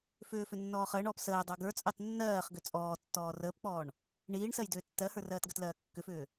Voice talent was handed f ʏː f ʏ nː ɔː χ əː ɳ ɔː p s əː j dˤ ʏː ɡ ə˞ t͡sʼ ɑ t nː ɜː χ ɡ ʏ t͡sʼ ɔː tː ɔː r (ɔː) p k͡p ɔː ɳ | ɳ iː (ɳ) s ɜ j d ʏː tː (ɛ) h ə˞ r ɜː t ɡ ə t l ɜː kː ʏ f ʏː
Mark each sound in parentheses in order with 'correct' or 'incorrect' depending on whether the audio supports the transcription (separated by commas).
incorrect, correct, incorrect